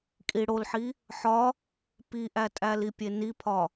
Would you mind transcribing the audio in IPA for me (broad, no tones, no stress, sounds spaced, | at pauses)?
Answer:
kʼ i ɽ o l ħ i | ħ ɒ | p i ʔ æ tʼ æ l i pʲ e n i pʰ ɒ